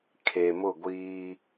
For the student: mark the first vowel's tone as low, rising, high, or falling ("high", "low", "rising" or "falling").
low